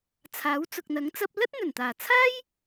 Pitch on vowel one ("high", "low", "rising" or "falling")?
rising